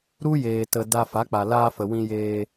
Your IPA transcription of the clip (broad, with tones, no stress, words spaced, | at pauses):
ɾu˦jeː˨tə˨ da˧ fa˨˦k͡pa˨laː˧fə˨ wĩ˧jeː˧